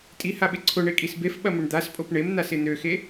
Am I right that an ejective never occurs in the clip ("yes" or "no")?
no